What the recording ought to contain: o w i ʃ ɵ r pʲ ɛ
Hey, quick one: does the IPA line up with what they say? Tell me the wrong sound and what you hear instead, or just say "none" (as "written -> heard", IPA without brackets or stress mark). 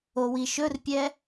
none